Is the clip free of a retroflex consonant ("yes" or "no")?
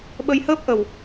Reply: yes